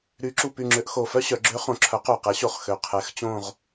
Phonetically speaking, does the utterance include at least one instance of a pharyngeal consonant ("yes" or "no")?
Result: no